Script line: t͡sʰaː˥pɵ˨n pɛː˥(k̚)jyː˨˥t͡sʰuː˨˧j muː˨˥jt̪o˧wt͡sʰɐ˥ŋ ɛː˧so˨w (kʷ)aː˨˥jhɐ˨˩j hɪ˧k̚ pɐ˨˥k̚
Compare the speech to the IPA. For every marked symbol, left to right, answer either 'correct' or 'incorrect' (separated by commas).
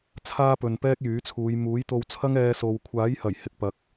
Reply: correct, incorrect